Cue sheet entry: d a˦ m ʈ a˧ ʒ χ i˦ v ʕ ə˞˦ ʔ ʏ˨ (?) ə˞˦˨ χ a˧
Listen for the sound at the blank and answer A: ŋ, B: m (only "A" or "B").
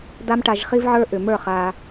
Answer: B